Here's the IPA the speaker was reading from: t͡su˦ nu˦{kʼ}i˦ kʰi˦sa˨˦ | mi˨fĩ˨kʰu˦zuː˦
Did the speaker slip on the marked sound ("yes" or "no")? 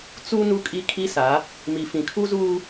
no